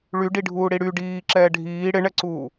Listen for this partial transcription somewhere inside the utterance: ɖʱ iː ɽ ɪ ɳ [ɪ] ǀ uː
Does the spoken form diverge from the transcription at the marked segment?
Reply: yes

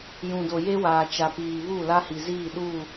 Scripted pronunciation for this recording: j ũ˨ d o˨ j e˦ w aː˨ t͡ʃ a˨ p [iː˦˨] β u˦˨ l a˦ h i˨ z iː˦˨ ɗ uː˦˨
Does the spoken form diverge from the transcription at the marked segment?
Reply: yes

